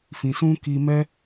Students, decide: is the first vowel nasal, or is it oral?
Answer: nasal